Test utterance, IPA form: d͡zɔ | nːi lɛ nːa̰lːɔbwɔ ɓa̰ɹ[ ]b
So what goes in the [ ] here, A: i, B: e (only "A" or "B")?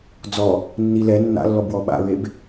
B